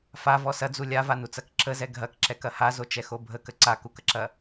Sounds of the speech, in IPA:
favɔ sɐd͡zu lʲavanut͡sɐk ǁəzɛ ɡʱɐkǁɛkɐ hazot͡ʃɛxo bʱəkə ǀakukəǁɐ

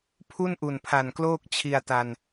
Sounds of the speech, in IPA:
pʰu˥˩nʔu˨˩npʰa˨˩nkloː˥˩k̚ t͡ɕʰi˧a̯ta˧n

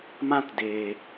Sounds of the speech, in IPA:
mã˦t deː˨

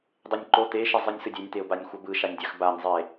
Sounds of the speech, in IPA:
dˤenʲǃo t̪e ʃezˤɯnʲsɯdʲenʲ t̪eʊ̯banʲxʷʌbɯ ʃanʲdʲaxbanʲ zˤe

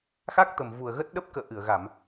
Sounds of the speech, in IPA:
xa˦˥k̚t̪ə˨˩mvu˨˩ə̯ɣə˦˥t̚ ɗə˦˥p̚kə̰ː˧˨ʔɨ˧˩ə̯ ɣa˧˩˨m

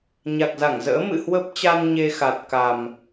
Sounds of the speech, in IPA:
ɲa˨˩k̚za˧˩ŋzə̰ː˧˥ mɨ̰˧˨hwə˦˥p̚t͡ɕa˧n ɲe˧xa˨˩t̚ ka˨˩m

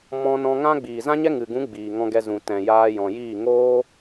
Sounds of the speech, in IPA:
mɔ̃˧nɔ̃˧ŋã˦ ɡ͡biː˨zã˦ɲɛ˦ ŋɨ˨ɡũ˨˦ ɡ͡biː˨ŋɔ̃˧ɡɛ˧ zũ˨tɛ̃˨ jaː˧jɔ̃˨jiː˦˨ ŋoː˦

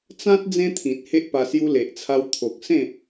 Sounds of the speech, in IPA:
t͡sã˦t̚ d͡zẽ˦t̪ʰĩ˨t̚ he˦ʔpa˧ sju˧le˨ʔt͡sʰa˧w t̪ʰo˨k̚sẽ˥˧

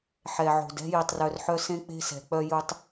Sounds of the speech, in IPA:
ħɛ˨ʕo̤˨d ɛ̤˦ji˨tˤrœ˨rħœ˦ sẽ˦k͡pe̤˦sɛ̤˨k͡pœ˦ ju˦tˤ

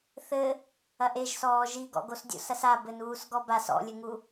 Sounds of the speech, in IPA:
θɘ | ɐʔeʒsɔː ʒiɡɔ̰ɡos dʲo̰sɐsa bɘnuːsɡɔbas ɔ̰lʲɘŋu

